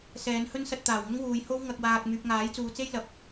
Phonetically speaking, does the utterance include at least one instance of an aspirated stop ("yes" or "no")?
no